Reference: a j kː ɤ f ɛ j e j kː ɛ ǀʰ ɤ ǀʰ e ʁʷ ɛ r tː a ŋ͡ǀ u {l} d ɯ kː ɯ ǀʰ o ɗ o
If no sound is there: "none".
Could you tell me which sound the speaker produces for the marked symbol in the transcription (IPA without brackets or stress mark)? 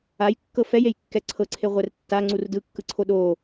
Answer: r